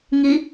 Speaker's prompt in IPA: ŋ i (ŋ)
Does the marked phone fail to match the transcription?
yes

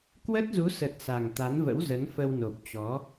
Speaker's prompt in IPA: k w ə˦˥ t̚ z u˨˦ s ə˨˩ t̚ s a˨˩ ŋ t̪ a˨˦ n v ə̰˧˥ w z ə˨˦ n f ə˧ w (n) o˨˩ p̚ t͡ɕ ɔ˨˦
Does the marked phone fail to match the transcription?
no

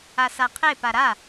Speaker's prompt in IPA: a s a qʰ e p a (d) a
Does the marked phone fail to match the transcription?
yes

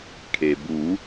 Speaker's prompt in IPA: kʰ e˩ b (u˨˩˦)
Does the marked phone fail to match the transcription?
no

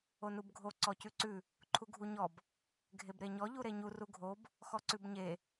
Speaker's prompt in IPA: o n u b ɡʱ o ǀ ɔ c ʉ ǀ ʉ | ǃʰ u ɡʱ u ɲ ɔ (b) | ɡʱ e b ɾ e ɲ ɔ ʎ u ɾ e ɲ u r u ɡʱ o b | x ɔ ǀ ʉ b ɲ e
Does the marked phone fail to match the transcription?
no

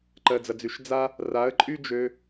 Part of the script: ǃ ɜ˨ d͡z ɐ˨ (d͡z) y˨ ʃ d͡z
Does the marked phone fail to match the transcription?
no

